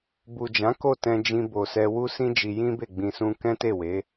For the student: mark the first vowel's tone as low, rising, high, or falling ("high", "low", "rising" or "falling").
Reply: low